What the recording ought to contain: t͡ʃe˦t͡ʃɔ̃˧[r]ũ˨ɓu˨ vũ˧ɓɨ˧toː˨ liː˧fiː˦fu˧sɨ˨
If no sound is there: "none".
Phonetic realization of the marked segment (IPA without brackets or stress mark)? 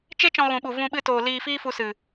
ɣ